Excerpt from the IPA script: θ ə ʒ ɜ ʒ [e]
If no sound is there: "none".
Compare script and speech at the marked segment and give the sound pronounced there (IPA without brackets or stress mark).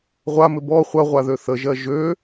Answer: ø